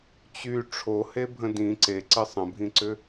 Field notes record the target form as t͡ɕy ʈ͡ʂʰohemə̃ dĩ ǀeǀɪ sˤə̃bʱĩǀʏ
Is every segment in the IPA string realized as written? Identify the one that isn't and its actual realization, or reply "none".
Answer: m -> bʱ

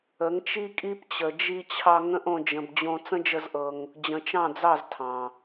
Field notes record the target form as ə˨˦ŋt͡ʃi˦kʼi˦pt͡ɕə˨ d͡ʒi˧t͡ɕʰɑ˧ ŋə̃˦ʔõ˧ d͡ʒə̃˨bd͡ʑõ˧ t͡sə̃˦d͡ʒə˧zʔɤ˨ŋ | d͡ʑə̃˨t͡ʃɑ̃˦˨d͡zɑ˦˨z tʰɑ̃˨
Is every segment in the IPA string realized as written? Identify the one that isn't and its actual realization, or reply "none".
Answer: none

